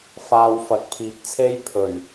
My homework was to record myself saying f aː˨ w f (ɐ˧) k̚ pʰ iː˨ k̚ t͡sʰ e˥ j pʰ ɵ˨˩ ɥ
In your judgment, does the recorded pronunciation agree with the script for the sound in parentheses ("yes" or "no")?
no